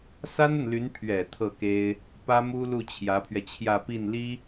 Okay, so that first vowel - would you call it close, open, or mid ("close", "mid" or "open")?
open